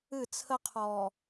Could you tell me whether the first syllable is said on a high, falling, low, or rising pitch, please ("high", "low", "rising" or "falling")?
falling